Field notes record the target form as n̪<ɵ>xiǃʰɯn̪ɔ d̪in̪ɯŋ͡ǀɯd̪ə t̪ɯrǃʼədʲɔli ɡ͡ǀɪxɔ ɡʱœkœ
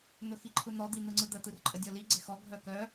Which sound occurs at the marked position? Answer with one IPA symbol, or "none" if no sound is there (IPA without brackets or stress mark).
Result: ɵ